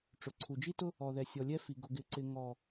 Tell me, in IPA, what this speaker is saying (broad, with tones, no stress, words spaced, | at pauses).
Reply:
ʈ͡ʂʊ˨ǀʰu˨ d͡ʒi˦tʊ˦ | ɔ˨ðɛ˨sʲɔ˨lʲɛ˦ fi˨ ɡʊ˨ɡɪ˨ǀɪ˨ ŋɔ˨